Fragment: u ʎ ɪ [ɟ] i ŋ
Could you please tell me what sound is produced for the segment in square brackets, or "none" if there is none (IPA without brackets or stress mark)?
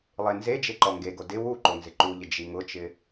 d͡ʒ